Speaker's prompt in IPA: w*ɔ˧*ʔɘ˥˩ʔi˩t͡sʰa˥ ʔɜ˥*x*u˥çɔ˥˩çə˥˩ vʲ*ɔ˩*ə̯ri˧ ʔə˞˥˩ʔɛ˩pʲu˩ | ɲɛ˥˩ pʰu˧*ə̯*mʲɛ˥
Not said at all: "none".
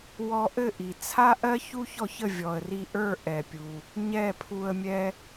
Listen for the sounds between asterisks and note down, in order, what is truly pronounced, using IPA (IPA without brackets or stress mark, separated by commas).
ɔ˧, ç, ɔ˩, ə̯